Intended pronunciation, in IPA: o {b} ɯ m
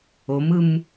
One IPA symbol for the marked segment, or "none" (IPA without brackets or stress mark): m